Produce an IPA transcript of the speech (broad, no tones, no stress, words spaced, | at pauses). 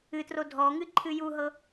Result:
ɨtro dʱɔŋɨ ǃʰɨjuɦɤ